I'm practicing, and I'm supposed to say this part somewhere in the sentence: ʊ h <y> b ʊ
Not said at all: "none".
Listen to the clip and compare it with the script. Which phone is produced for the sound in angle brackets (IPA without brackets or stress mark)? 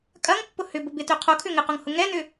ʏ